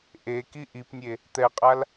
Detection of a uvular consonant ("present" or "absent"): present